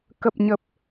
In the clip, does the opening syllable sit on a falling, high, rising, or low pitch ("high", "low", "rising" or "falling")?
low